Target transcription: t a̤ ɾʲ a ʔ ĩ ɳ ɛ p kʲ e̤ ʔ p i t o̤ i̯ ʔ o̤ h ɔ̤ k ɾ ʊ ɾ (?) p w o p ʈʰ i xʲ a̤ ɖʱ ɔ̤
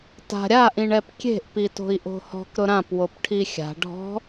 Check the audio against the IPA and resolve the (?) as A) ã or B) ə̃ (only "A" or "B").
A